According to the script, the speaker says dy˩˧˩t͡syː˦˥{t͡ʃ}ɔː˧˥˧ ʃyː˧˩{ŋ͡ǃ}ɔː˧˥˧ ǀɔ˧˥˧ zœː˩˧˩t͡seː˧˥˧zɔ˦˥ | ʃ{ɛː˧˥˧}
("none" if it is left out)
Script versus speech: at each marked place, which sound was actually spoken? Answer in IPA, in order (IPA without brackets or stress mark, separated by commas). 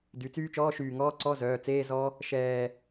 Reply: t͡ʃ, ŋ, ɛː˧˩